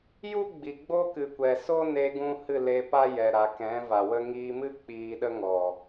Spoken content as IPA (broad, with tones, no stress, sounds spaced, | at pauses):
j u˦ ɡ͡b i˨ ɡ͡b o˦ k ɨ˨ kʷ ɛ˨ s o˦ n e˧ ɡ ũ˧ h ɨ˦˨ l e˧ p a˦ j ɛ˨ ɾ a˨ k ɛ̃˨˦ v a˨ w ə˦ ŋ iː˧ m ɨ˦ k͡p iː˧ ɗ ə˦ ŋ ɔ˨